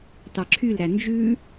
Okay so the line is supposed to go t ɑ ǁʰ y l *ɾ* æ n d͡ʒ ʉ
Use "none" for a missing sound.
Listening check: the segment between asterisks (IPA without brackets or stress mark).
ɾ